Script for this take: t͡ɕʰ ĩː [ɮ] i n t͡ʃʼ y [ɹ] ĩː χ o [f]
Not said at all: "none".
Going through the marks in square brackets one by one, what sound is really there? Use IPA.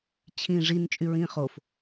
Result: ʐ, ɹ, f

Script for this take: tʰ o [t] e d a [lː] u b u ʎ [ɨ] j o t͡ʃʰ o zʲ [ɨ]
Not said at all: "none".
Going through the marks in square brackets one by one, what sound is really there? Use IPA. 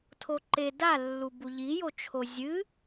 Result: ǃ, lː, i, ɨ

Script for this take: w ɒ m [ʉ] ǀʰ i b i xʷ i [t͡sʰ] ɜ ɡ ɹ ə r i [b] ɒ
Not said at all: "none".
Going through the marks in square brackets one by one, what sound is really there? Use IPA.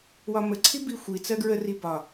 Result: ə, t͡s, b

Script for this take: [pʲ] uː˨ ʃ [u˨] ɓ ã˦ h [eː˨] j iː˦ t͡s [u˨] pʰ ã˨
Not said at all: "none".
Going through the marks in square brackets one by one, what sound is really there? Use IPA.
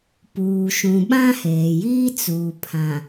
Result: p, ũ˨, eː˨, uː˨

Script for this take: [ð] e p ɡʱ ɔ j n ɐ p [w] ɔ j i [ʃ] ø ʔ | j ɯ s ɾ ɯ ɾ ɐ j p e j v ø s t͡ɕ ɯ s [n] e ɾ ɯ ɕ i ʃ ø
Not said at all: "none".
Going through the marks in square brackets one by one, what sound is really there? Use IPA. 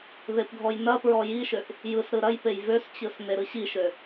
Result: ð, ɹ, ʃ, n

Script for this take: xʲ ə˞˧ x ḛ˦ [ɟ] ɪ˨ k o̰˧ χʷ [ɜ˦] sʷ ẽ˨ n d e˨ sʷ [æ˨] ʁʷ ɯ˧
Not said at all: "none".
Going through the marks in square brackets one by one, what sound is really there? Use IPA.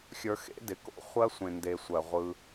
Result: d, ɜ˦, ɜ˨

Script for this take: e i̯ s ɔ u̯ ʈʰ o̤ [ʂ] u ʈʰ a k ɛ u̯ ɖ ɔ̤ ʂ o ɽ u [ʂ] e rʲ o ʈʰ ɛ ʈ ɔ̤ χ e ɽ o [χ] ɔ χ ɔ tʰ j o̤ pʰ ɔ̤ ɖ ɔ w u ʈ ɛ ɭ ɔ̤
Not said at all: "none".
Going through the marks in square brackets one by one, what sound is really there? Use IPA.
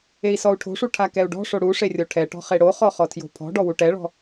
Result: ʂ, ʂ, χ

